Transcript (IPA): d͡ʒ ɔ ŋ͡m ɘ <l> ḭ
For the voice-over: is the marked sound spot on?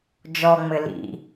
yes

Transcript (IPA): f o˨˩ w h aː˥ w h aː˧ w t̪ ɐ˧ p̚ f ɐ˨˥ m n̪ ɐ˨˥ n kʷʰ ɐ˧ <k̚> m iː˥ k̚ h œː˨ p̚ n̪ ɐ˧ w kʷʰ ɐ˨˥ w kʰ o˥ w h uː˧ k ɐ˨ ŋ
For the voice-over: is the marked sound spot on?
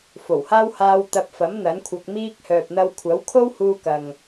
yes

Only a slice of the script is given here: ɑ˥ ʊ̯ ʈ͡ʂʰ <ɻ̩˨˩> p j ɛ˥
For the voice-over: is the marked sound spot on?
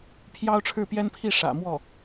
no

